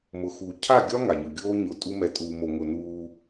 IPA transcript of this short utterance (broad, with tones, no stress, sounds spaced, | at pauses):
m ʊ˨ x u˨ cʰ a˦˨ ɡʲ ɒ˦ ŋ a˨ ɲ ɯ˨ ɡʲ oː˦ ɲ ʊ˨˦ tʼ u˦ m ɛ˨ tʼ uː˨ m o˨ ŋ ʊ˨ n uː˦